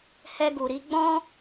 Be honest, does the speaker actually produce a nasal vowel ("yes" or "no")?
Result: yes